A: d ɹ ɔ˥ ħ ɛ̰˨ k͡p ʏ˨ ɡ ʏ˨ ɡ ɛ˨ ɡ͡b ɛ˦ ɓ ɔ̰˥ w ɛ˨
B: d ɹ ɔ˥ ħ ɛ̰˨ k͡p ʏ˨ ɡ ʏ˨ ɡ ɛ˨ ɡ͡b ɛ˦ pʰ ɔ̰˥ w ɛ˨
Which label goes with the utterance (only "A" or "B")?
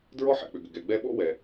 A